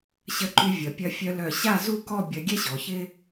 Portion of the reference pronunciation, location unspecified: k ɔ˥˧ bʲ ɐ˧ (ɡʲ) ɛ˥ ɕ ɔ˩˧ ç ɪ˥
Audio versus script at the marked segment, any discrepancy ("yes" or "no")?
no